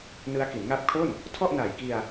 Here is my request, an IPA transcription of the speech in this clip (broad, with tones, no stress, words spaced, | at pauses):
nɯ˦˥a̯ ki˩˦nŋa˦˥p̚kʰo˥˩n | tʰɔ˥˩ʔna˨˩jki˧a̯